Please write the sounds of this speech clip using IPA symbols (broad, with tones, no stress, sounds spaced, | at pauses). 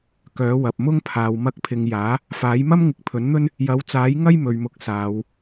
k œː˨˥ w ɐ˨ p̚ m ʊ˥ ŋ pʰ aː˨ w m ɐ˧ k̚ pʰ ɪ˨ ŋ j aː˨˥ | f aː˨˥ j m ɐ˥ m ŋ ɪ˨˥ k̚ pʰ ɵ˨˥ n n̪ ɵ˥ n | j ɐ˨˥ w t͡s aː˨˥ j ŋ ɐ˥ j m ɵ˨ ɥ m ʊ˨˥ k̚ s aː˨˧ w